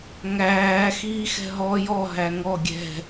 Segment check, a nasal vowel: absent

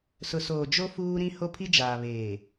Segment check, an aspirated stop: present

